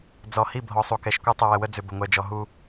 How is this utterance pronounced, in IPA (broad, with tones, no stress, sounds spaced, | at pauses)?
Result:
d͡z ɔ˨ h i˦˨ bʱ ɔ˨ sˤ u˨ k ɛ˨ ʃ kʷ ɛ˦ tˤ ə˨ w ə˨ w ə˦ d͡z ʏ˨ b ə˨ ŋʷ ɛ˨ d͡ʒ ɔ˨ ɦ u˦